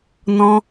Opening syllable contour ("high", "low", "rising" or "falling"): high